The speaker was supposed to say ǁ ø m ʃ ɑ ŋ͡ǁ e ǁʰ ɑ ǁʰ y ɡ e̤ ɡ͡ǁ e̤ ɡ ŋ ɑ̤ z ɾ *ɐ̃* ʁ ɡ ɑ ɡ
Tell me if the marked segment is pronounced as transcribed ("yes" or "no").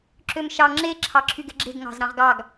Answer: no